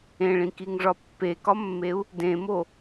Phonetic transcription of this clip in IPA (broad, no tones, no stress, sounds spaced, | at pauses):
ẽ ɭ ĩ k i ŋ ʐ ɒ pː e k ɒ mː e u̯ | d ẽ m o